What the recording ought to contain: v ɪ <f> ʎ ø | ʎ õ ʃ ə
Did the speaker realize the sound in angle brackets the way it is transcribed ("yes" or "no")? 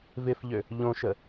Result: yes